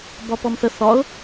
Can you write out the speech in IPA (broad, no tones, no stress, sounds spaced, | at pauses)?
b ɒ p ɔ m θ ə θ ɒ ʊ̯